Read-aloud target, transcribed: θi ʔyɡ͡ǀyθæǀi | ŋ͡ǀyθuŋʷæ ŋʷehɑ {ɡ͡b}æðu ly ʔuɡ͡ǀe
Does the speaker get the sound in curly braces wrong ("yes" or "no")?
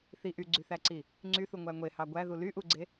yes